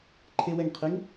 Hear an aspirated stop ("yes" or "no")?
yes